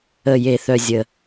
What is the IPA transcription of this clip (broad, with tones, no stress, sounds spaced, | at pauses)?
ə˨˩ j e˨˩ θ œ˨˩ zʲ ə˨˩